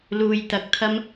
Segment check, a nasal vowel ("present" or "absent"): absent